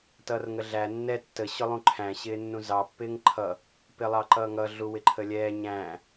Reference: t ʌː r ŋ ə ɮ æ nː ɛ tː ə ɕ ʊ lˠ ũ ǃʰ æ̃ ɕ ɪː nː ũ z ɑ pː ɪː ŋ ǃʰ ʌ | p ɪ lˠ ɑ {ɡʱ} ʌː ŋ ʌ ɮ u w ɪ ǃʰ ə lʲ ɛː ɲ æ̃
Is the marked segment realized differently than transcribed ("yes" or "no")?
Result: yes